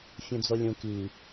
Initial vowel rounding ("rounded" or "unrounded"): rounded